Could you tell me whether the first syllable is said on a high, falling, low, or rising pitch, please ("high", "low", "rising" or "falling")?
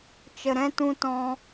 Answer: low